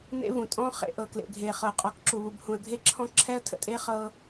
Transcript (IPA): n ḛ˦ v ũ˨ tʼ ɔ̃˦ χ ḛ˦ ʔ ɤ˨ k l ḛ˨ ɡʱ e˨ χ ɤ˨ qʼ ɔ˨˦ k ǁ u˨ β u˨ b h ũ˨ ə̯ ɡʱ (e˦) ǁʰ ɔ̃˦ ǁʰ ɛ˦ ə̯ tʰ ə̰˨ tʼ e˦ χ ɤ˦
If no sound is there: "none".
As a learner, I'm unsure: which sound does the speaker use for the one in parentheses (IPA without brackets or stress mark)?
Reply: e˦